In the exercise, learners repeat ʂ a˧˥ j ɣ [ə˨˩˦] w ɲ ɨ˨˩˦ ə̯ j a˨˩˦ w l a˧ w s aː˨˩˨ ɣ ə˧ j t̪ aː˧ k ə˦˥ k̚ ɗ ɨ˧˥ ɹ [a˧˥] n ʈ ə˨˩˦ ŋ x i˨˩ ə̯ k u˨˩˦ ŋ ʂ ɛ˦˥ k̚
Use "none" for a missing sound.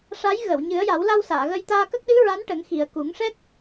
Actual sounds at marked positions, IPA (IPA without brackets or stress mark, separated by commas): ə˨˩˨, a˧˥